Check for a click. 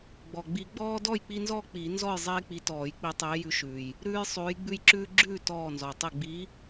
present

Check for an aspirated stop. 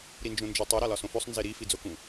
absent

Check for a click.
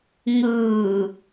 absent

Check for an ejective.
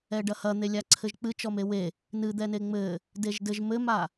absent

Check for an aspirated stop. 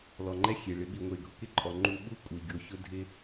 absent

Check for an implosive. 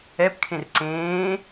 absent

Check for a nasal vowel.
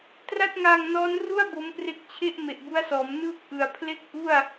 absent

